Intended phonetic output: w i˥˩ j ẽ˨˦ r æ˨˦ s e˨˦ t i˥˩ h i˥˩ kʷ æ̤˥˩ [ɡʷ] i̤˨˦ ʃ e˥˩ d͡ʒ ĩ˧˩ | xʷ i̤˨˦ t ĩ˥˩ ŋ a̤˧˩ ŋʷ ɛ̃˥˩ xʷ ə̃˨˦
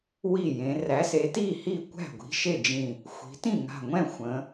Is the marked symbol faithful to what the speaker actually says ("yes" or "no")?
yes